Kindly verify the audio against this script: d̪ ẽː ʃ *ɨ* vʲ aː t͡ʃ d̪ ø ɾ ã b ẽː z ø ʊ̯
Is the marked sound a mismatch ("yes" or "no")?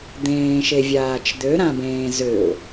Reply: yes